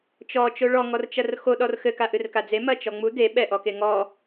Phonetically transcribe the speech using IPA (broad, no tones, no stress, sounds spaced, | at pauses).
t͡ʃ ɔ t͡ʃ o ɭ ɔ ŋ ɔ r t͡ʃ ɐ r x o ɗ ɔ r x ɘ k a ʔ ɨ r k a d͡z e m ɐ t͡ʃ ɔ ŋ͡m u d e ɓ ɛ ʔ ɔ k e ŋ ɔ